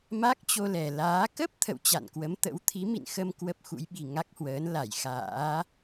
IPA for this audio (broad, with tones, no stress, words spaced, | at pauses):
ma˦˥k̚t͡ɕo˧lɛ˨˩laː˨˦ kə˦˥p̚ t̪ʰə̰˧˨wt͡ɕa̰˧˨nkwə˨˦mt̪ə̰˧˥w t̪ʰi˨˦mḭ˧˨nxə˧m kwə˦˥p̚xṵ˧˥jɓi˨˩ ŋa˦˥k̚hwəː˨˦n la˧˩jxa̰ː˧˥